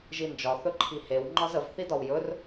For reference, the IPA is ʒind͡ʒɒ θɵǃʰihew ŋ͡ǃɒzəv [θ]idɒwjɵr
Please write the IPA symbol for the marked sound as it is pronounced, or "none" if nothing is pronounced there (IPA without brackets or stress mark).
θ